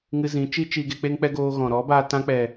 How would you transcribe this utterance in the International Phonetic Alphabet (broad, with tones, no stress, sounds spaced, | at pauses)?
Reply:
ŋ ɨ˧ z ĩ˨˦ t͡ʃ i˦ t͡ʃ iː˧ ɡ e˧ k͡p e˧ ŋ k͡p ɛ˧ ɡ oː˧ ɣ ɔ̃˨ ɾ ɔ˨˦ b a˧ t ã˧ k͡p ɛ˨